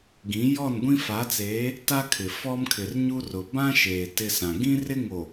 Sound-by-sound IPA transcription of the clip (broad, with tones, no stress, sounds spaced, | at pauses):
ɡ ĩ˨˦ j ɔ˦˨ n ɡʷ ĩ˦ f a˨˦ t͡s eː˨˦ | t a˦ kʰ ɪ˨ f ɔ˦ m kʰ ɪ˨ r ɲ u˦ r ʊ˨ b ã˦ ʃ eː˨ t ɪ˦ s ã˨ ɡ ĩ˦ r ɪ˦ ŋ o˨